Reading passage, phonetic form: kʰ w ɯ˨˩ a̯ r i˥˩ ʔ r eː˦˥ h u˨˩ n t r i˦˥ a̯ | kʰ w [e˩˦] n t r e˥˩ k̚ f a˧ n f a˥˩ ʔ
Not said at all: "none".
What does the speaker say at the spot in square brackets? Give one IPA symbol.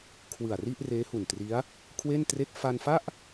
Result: e˥˩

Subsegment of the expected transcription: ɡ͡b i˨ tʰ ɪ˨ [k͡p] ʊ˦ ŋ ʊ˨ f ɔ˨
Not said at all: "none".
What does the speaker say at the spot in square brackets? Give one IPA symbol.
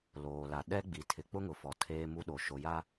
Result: k͡p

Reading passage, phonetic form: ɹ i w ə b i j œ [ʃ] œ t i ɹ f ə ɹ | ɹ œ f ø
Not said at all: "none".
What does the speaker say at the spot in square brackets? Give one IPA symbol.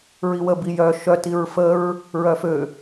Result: ʃ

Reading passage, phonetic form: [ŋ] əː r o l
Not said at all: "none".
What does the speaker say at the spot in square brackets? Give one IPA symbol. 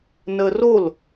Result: n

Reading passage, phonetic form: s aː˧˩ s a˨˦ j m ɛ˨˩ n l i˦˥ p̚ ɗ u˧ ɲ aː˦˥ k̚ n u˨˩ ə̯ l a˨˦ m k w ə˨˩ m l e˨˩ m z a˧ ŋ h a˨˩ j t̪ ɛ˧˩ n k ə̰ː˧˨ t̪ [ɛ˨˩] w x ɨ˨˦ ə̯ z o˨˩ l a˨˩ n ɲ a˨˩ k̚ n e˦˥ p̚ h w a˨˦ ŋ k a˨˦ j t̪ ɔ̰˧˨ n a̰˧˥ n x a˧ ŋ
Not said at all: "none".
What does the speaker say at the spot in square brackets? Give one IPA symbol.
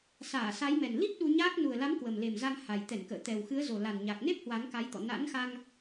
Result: ɛ˨˩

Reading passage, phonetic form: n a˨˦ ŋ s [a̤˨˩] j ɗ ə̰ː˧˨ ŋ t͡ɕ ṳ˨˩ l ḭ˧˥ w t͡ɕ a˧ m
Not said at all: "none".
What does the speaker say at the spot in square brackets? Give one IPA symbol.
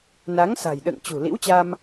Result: a̤˨˩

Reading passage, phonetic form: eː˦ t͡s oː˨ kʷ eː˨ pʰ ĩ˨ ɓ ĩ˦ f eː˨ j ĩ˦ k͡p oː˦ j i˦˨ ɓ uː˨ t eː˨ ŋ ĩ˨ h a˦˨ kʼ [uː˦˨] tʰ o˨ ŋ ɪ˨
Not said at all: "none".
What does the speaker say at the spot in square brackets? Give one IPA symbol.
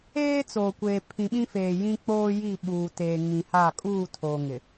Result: uː˦˨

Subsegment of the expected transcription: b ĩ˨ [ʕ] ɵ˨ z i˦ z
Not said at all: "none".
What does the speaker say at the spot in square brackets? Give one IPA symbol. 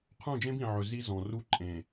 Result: ʕ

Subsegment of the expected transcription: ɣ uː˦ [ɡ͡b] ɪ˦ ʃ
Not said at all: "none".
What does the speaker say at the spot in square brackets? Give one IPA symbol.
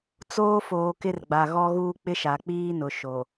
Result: k͡p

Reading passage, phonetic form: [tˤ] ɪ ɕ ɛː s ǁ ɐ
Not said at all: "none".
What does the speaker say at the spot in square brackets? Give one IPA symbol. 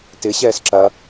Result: t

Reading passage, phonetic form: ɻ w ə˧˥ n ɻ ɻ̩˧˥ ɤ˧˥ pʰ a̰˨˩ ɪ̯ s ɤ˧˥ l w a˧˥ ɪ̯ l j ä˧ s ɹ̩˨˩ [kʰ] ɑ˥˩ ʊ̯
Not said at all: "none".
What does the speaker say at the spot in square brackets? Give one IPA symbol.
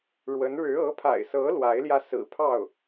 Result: pʰ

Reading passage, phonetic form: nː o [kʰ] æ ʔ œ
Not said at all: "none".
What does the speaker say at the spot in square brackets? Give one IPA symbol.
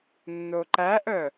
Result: ǃ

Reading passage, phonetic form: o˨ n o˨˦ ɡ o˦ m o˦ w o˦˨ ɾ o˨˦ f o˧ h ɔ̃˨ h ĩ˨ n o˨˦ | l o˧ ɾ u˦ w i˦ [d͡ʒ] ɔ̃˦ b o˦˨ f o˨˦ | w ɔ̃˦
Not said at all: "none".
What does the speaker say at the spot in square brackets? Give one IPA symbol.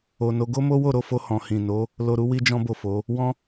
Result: d͡ʒ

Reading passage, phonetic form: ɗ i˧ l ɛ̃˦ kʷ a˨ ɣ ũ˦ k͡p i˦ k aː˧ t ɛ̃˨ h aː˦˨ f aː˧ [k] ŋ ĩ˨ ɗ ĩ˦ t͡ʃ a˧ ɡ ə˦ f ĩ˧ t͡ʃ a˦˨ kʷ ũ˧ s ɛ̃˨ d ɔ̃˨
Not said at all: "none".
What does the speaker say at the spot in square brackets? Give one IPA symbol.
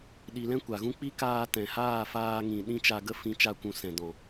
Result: none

